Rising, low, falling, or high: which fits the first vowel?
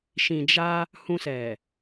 low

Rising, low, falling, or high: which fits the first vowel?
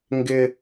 high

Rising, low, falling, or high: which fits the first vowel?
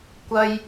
high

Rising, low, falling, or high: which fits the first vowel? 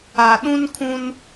low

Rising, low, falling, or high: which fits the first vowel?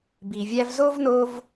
low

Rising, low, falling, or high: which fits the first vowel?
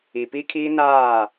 low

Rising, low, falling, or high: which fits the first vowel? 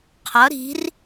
rising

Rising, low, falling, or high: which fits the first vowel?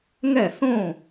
falling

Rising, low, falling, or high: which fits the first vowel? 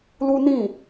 high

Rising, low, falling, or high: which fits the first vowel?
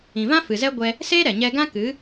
low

